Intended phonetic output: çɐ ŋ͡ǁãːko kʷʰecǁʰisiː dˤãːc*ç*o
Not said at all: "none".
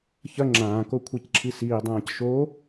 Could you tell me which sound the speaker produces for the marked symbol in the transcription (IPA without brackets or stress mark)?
ʃ